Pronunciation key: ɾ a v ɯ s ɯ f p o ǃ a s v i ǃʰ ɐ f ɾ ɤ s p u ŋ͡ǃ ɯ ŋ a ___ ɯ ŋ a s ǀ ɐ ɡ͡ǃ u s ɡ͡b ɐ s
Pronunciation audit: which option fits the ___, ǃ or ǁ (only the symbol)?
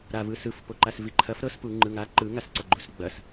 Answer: ǃ